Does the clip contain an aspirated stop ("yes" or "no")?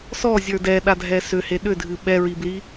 no